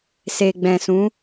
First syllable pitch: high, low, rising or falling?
low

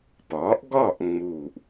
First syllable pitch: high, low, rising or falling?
rising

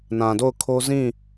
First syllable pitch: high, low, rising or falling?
low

